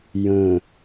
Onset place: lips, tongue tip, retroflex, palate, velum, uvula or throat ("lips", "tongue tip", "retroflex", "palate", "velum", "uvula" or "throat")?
palate